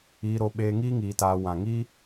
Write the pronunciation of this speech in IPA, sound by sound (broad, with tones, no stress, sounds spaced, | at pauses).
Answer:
iː˧ ɾ o˧ ɓ eː˧ ŋ iː˦ ŋ iː˧ t aː˧ w ã˨ ŋ iː˦